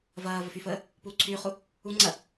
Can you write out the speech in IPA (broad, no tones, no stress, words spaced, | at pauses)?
vɐː vəfyfəː | puːǀʰyːχu | u ŋ͡ǀɐ